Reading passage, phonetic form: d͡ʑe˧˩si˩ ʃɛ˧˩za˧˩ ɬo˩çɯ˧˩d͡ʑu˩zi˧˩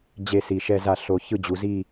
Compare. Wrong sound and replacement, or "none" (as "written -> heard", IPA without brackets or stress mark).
none